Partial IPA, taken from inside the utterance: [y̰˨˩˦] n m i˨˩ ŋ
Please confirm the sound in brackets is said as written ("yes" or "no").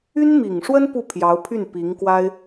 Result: no